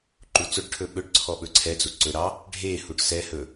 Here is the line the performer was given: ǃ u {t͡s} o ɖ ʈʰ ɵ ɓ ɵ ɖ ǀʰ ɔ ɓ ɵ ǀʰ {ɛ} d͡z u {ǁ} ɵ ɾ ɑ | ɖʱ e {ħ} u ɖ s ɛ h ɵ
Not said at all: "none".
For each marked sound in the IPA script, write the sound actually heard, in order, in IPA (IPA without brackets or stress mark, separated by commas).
t͡s, ɛ, ǀ, h